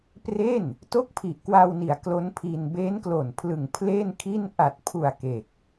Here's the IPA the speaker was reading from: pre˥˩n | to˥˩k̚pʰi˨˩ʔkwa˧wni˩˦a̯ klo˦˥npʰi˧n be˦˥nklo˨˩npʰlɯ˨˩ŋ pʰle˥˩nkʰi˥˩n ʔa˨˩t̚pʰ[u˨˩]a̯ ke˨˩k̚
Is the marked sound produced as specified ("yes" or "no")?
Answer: yes